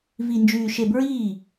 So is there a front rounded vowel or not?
yes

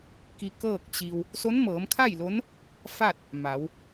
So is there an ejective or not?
no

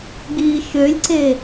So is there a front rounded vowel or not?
yes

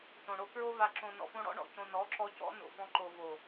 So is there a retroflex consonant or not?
yes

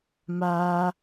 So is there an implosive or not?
no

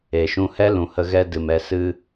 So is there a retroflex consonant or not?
no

